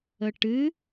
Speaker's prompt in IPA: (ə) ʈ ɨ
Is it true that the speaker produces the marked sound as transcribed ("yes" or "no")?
yes